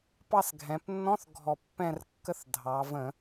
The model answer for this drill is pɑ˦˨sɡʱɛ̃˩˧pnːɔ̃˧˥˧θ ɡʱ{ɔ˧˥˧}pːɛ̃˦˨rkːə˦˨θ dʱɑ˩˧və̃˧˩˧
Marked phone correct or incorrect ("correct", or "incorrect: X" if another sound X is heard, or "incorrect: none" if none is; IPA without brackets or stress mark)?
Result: incorrect: ɔ˨˩